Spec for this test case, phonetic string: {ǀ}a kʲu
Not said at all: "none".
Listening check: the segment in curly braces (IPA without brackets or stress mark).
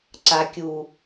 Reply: ǀ